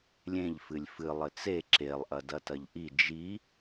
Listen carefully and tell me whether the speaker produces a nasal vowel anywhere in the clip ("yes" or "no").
yes